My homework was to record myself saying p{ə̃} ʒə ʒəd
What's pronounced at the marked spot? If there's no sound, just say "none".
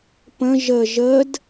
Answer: ə̃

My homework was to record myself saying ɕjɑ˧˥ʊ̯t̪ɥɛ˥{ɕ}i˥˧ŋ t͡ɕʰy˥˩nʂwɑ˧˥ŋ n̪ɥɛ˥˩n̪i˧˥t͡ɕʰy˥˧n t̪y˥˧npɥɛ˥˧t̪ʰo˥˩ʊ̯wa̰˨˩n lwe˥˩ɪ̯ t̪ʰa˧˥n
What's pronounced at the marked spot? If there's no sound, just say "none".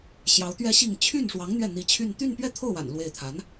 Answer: ɕ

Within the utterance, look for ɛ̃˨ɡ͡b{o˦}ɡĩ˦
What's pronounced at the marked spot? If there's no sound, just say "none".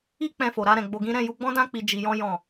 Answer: o˧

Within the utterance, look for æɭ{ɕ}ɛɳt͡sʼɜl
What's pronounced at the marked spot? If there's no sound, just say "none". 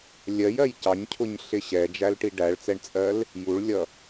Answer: t͡s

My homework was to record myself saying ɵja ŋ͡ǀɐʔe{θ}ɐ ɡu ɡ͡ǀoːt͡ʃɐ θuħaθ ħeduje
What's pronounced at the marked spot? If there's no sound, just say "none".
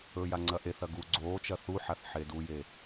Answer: θ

